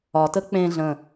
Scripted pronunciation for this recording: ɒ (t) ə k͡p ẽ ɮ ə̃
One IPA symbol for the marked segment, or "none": t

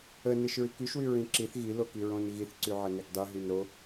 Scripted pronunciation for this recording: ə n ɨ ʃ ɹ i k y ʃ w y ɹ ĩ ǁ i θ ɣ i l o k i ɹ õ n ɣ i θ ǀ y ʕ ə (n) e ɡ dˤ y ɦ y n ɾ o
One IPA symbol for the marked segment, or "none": n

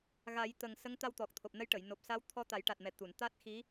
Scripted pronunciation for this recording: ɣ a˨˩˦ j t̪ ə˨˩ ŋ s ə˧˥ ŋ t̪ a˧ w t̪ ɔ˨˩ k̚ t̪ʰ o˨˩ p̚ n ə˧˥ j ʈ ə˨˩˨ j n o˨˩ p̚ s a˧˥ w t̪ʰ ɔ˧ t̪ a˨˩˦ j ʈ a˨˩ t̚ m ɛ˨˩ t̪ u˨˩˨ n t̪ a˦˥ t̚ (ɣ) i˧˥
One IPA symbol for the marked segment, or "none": x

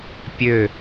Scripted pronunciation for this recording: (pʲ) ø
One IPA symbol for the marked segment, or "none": pʲ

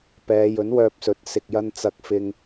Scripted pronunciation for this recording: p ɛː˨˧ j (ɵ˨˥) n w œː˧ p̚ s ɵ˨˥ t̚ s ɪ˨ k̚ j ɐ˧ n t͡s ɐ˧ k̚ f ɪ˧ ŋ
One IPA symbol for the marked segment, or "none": ɵ˨˥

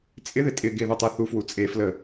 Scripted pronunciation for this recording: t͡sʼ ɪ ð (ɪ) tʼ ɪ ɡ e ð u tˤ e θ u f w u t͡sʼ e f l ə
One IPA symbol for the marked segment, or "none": ɪ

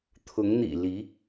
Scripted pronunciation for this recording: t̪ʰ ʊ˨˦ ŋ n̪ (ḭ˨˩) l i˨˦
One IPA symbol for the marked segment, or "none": ḭ˨˩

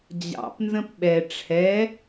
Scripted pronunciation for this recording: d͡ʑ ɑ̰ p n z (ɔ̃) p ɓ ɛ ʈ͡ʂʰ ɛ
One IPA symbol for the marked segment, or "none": ə̃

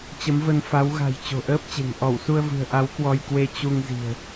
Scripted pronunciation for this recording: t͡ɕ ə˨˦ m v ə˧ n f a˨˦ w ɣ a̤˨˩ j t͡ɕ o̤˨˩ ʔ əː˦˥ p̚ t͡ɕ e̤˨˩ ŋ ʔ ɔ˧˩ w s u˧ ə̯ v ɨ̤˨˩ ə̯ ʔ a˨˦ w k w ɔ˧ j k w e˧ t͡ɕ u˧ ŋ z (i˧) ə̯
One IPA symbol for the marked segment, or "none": i̤˨˩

